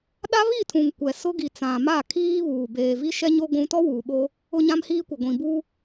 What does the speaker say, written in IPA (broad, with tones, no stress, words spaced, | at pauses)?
ɗa˦βi˦˨tʰũ˨ŋ kʷɛ˨ sʊ˦ ɡi˨t͡sã˨ma˦˨ kʰiː˦βuː˨ beː˨vi˦ʃɛ˦ɲo˦ ɡʷũ˦ tɔ˦wuː˨ɓo˦ | ʊ˦ɲã˦mhiː˦kʷɪ˨ ɡʷĩ˨bu˦